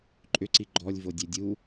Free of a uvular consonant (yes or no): yes